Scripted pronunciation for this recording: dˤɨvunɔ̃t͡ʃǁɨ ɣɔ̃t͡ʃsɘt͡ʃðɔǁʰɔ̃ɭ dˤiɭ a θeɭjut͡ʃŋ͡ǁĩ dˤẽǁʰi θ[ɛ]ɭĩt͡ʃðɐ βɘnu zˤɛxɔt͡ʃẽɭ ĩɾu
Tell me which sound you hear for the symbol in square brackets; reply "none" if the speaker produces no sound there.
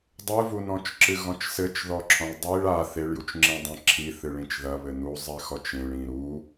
ɨ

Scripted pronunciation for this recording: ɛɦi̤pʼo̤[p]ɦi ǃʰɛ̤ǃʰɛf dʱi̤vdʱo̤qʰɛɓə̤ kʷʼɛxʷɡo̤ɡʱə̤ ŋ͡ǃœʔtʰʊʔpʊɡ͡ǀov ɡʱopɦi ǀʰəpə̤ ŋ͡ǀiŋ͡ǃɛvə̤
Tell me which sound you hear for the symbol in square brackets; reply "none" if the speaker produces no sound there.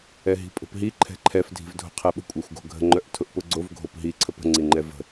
p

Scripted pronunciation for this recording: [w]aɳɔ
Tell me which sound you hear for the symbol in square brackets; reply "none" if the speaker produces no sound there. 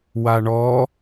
w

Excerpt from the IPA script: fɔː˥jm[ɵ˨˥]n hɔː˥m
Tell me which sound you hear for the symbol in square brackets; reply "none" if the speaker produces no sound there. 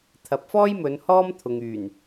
ɵ˨˧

